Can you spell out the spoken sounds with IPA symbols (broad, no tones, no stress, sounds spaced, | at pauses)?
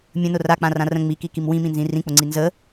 mʲ ə̃ n ʊ r a k͡p ã r ã r ə̃ ŋ͡m i k i k i m w ĩ m ĩ n z ĩ r ĩ k͡p ʊ ŋ͡ǀ i n z ə